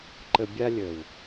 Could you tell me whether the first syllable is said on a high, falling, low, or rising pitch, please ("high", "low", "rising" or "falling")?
low